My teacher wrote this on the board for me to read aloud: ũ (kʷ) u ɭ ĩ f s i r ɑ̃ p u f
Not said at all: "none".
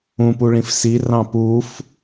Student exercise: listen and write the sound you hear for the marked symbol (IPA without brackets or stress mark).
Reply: p